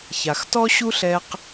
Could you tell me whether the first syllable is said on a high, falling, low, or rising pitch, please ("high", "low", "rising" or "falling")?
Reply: low